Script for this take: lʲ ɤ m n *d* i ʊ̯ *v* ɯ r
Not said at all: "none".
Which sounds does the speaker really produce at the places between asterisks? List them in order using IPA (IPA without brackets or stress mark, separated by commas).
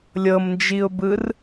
d͡ʒ, b